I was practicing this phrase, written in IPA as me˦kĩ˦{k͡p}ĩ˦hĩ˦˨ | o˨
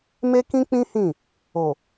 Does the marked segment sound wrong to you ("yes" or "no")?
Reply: no